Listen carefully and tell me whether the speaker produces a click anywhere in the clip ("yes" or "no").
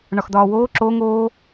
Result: yes